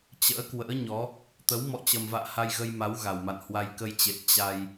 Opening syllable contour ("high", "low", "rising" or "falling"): rising